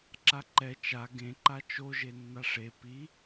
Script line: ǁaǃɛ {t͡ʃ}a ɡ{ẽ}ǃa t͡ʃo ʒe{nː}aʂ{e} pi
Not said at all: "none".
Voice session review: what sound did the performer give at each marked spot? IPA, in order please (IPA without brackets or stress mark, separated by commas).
t͡ʃ, ẽ, nː, e